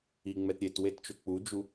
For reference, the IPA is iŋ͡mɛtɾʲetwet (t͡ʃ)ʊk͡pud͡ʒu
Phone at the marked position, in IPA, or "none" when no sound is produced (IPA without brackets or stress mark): t͡ʃ